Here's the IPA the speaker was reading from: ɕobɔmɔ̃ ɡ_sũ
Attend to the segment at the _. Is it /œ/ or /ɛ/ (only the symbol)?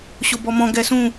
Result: ɛ